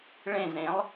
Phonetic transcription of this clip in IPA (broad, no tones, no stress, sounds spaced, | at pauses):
ɭ ẽ z ɾ ẽ lˠ